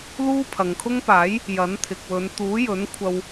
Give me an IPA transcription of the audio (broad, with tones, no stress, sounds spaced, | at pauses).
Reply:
l uː˥ pʰ ɐ˨ ŋ kʰ ʊ˥ ŋ p aː˨˥ j | j ɐ˨˥ n t̪ʰ ɪ˨ k̚ w ɵ˨˧ n t̪ uː˨˥ j ɵ˨˥ n kʷʰ ɐ˧ w